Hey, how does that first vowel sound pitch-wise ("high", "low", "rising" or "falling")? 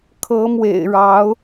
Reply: rising